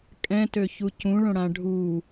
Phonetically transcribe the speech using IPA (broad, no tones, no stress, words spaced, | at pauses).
kʼɛ̃tøçu cũɭõɽã ɖʱu